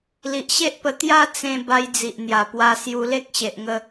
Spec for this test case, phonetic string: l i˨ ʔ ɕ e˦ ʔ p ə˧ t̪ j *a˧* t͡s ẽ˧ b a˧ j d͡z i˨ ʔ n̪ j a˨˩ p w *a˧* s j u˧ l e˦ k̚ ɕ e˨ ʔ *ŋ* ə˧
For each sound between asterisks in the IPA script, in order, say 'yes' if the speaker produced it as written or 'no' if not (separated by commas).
no, yes, yes